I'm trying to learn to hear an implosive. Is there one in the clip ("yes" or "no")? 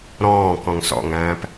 no